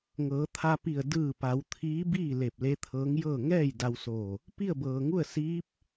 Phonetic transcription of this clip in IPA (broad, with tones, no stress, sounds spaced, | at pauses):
ŋ ɤː˩˧ t̪ʰ a˧ p i˧˩ ə̯ d ɯː˧˩ p a˩˧ w t̪ʰ iː˧˥ b iː˥˨ l e˧˩ p̚ l e˧˥ t̪ʰ ɤː˧˥ ŋ j ɤː˥˨ ŋ ɛː˥˨ j d a˧ w s oː˧˩ | p i˥˨ ə̯ b ɤː˩ ŋ u˥˨ ə̯ s iː˧˥ p̚